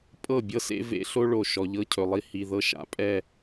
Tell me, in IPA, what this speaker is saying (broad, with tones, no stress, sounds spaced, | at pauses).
pʼ ɤ˦˨ bʲ ɤ˦ s ḛ˦ v ḛ˦ ɬ o˦ ɭ o˨ ʃ ɔ˨ ʎ ɤ˦ cʰ ɵ˨ lˠ i˦ h i˨ ð ɤ˦ ʃ a̰˦ pʼ ɛ˦˨